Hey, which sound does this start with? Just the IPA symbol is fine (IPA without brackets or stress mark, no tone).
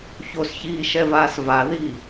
ç